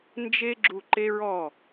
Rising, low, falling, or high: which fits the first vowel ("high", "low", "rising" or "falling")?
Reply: high